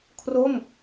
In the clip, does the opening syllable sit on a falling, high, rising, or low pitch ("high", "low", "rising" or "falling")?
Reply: falling